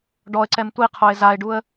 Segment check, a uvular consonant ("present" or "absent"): present